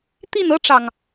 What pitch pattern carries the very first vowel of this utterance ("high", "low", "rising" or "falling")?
falling